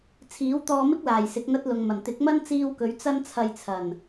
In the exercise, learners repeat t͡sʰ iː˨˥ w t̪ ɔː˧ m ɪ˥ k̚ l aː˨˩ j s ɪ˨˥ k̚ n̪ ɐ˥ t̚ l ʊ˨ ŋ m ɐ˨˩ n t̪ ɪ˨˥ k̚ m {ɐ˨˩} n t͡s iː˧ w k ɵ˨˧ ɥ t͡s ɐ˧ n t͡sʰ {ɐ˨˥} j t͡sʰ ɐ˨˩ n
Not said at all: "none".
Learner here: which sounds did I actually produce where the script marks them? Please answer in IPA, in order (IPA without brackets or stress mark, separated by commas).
ɐ˥, ɐ˨